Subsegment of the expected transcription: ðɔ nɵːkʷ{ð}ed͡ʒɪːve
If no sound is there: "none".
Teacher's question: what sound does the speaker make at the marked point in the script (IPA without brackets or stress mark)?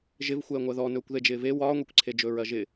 ð